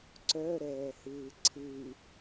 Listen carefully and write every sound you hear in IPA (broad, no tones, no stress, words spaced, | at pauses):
ǀœɾɛːhɨː ǀʰɨ